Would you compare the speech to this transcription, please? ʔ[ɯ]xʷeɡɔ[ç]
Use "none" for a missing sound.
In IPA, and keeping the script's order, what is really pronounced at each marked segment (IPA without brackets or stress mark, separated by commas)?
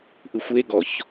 ɯ, ç